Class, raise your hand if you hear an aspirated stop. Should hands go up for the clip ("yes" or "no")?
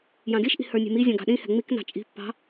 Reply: no